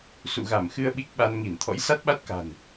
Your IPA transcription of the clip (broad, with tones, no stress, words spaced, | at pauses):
sṵ˧˨ɣa˧˩mxɨ˧ə̯ ɓi˦˥k̚ɓa˧nŋi˧˩n t̪ʰɔ̰˧˥jsa˦˥t̚ɓa˦˥t̚ka̤˨˩n